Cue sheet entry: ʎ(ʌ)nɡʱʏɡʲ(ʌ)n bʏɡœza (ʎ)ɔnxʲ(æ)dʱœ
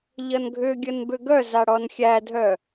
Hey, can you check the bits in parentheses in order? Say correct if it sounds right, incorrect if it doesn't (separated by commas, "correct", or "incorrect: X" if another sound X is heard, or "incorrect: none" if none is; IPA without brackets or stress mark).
correct, incorrect: ə, incorrect: ɽ, correct